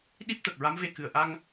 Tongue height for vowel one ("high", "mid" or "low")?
high